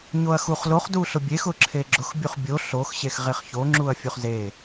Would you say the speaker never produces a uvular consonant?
no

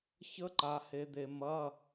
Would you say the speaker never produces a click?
no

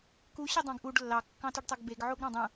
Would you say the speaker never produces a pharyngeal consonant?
no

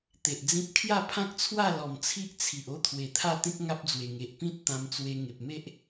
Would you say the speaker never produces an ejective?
yes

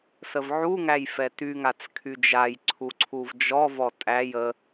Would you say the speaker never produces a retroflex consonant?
yes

